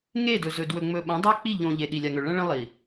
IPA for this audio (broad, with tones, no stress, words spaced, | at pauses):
ŋe˦˨dɵ˨zɵ˨ dwɵ˨ŋ͡mɵ˨ ɓɐ̃˨˦dˤa˦k͡pi˦˨ ʎõ˨ ʎe˨ɗi˨lʲa˨ŋɵ˨ ɭɐ̃˦ɭɐ̃˦ lˠi˨